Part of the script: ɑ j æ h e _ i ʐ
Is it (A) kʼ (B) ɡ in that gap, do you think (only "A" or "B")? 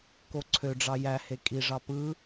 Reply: A